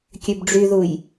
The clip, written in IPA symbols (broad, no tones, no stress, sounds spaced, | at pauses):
kʲ ø b ɖ͡ʐ y ð u j